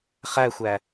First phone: χ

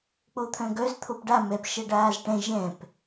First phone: k͡p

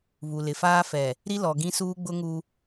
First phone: β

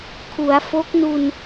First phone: kʰ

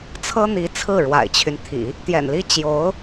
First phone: t͡sʰ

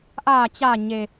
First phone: ʔ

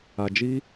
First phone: a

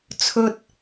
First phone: t͡sʰ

